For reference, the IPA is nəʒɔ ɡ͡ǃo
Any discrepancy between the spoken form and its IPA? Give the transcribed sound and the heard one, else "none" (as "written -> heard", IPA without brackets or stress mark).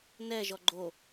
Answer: ə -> ɛ